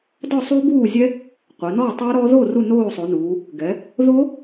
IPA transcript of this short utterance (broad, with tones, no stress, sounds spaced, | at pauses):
d ɔ˥˨ sˤ u˦˥ b uː˥˨ zʲ ɛ˦˥ | qʷ ɛ˩˧ n ɔː˥˨ tˤ ə˞˦˥ ɾ ɔ˦˥ ð o˥˨ r u˥˨ n oː˥˨ sˤ o˩˧ n uː˩˧ | ɡ ɛ˩˧ | ð o˦˥